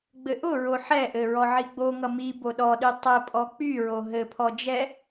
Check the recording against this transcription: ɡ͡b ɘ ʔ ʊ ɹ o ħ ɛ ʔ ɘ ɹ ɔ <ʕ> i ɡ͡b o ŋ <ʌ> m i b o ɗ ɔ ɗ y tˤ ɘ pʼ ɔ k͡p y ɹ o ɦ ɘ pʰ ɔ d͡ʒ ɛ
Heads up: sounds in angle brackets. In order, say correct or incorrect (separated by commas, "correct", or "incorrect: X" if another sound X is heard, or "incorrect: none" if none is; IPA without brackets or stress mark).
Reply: correct, correct